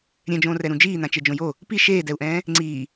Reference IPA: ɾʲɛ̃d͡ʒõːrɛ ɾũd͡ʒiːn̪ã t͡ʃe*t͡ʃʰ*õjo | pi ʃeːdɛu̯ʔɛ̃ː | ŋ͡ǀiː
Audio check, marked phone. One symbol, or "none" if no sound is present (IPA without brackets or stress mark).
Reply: d͡ʒ